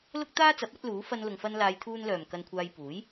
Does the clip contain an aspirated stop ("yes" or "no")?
yes